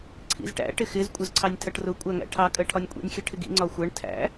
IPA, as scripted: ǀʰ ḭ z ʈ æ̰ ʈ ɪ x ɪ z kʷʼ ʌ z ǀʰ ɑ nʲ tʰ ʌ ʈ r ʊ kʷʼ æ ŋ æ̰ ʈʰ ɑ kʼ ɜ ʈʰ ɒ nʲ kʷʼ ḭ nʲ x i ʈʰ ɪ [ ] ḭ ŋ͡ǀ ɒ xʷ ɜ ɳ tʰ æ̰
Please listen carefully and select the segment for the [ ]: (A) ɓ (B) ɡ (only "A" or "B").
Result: B